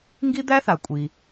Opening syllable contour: high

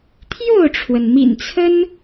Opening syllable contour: falling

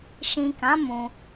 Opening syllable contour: low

